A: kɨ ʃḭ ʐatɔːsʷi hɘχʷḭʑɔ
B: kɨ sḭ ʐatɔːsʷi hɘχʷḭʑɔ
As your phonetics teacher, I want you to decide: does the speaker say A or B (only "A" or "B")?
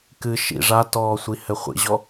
A